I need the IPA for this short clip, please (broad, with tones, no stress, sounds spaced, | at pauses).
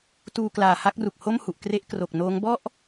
t uː˧ k l aː˨˩ h a˥˩ k̚ r u˨˩ k̚ h o˥˩ m h u˨˩ ʔ k r e˦˥ ʔ k r o˨˩ k̚ n oː˦˥ ŋ b ɔ˥˩ ʔ